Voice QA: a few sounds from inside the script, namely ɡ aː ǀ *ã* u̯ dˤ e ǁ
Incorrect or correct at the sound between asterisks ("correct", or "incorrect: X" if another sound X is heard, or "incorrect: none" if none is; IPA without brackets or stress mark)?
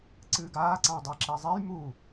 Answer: correct